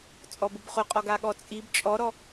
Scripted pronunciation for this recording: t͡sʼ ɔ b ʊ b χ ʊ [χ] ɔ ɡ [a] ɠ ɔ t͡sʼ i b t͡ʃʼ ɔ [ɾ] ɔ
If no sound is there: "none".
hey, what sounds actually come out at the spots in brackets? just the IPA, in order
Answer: qʼ, a, ɾ

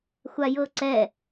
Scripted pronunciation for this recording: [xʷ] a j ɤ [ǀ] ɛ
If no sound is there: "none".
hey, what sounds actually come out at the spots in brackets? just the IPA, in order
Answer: xʷ, ǀ

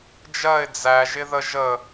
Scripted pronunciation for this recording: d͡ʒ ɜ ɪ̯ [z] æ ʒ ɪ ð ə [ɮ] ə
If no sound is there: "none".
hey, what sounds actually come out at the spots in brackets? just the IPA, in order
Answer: d͡z, ʒ

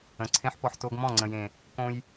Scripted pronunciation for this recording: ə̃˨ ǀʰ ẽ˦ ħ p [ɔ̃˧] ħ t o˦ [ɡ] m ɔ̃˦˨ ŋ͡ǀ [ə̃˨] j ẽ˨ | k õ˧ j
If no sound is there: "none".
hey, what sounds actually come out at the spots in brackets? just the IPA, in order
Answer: ɔ˧, ɡ, ə̃˨

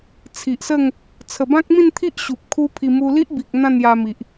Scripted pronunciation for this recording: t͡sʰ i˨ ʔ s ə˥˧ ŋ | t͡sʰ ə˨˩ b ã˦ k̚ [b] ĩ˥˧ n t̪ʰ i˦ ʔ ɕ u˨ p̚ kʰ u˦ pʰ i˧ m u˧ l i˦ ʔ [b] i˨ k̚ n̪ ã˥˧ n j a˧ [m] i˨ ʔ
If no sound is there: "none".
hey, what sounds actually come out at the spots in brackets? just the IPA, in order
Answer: m, b, m

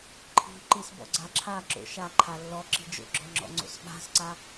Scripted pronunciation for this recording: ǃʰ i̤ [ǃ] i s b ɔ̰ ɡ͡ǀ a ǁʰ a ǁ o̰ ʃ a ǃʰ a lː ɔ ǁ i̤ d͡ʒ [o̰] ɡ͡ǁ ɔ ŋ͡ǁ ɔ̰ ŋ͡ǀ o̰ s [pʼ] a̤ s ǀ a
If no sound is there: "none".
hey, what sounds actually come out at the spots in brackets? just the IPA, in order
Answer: ǃ, o̰, ɓ

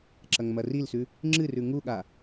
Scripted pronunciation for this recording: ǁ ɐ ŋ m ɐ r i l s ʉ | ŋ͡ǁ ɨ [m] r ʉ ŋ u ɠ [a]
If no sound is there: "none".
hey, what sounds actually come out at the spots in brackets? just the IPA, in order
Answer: none, a

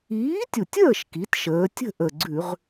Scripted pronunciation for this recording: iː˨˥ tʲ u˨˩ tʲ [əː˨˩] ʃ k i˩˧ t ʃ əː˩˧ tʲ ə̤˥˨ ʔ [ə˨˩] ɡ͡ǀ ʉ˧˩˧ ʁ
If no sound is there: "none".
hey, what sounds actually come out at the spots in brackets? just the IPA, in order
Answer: əː˥˨, ə˨˩

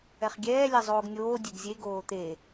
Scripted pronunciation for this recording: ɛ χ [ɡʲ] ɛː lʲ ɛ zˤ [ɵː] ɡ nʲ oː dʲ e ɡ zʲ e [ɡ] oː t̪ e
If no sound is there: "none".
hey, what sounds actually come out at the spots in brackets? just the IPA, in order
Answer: ɡʲ, oː, ɡ

